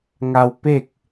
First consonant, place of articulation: velar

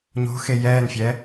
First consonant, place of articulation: palatal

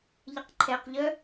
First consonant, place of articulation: palatal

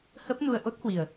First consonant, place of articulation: glottal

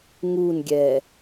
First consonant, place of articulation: velar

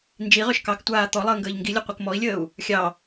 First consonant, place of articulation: alveolar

